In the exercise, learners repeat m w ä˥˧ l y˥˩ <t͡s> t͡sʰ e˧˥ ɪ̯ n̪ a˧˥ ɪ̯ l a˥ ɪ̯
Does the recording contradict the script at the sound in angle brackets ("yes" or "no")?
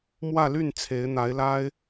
yes